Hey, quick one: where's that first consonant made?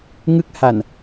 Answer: velum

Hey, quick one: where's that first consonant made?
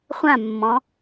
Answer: uvula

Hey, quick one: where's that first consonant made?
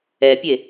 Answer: lips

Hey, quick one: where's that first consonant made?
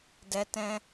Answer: tongue tip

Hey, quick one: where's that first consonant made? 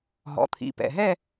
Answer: throat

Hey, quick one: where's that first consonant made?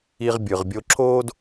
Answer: uvula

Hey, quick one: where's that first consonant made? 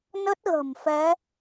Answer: tongue tip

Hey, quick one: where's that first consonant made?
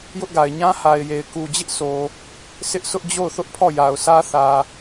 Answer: palate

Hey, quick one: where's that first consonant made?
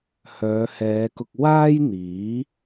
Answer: throat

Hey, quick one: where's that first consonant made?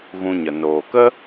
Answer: velum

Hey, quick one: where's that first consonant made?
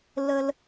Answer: tongue tip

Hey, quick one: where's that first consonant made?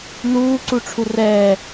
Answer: tongue tip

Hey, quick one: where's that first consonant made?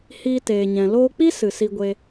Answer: throat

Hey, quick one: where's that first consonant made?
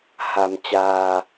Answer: throat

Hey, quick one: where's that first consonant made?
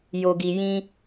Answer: palate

